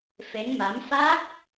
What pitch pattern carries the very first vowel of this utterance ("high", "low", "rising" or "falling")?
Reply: rising